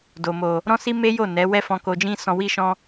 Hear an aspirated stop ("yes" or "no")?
no